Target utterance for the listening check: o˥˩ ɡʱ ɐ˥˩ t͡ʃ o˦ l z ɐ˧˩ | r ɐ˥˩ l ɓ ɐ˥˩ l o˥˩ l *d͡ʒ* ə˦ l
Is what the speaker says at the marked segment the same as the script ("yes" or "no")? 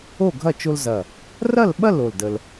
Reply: no